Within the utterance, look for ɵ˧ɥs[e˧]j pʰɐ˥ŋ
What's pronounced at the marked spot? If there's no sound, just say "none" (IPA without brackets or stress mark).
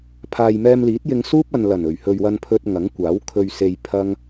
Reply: e˧